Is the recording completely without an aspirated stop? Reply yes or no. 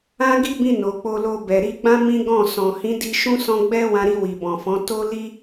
yes